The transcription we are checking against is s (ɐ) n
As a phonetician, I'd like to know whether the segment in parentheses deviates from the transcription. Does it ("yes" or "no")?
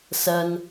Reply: no